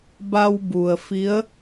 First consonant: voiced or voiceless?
voiced